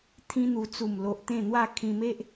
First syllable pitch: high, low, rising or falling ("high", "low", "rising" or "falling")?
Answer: high